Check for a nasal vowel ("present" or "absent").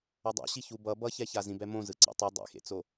present